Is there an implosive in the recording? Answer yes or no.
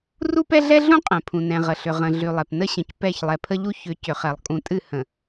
no